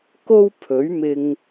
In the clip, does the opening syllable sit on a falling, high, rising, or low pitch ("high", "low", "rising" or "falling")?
high